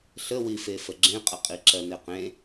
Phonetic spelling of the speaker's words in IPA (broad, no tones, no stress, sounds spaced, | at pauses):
ɬ ə w i f e f ə ɡ͡ǁ ẽ qʼ ə qʼ i ǁ ɜ n e q ẽ